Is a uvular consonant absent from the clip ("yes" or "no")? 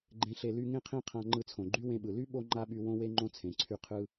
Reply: no